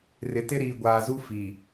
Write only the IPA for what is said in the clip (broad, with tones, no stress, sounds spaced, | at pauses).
r ɪ˨ t ɪ˦ ɾ iː˨ ɡʷ aː˨ z u˦ f iː˨